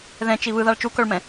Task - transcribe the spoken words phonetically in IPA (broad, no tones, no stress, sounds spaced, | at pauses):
ð ɛ̃ t͡ʃ i β ɯ ð a ɭ t͡ʃ u k œ ɭ m ɛ̃